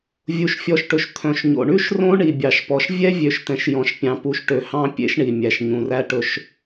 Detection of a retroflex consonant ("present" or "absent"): present